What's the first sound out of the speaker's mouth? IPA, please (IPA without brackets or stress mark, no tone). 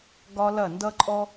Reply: ɡ